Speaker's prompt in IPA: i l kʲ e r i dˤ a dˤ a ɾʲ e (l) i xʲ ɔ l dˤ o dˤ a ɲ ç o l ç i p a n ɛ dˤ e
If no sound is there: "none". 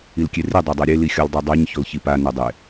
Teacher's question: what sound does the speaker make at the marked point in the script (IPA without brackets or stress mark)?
l